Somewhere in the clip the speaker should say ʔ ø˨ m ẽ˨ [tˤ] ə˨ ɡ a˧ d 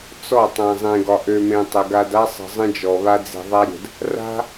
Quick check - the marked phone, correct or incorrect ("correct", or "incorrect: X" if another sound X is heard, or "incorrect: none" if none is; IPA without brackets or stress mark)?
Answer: correct